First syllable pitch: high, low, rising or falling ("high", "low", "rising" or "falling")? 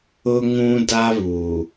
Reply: high